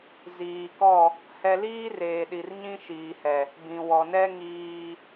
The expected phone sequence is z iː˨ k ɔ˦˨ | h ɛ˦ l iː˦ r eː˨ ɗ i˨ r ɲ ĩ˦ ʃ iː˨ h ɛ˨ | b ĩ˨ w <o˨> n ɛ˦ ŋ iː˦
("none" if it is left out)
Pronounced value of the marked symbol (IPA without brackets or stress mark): ɔ˨